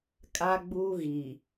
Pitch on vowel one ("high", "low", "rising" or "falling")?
high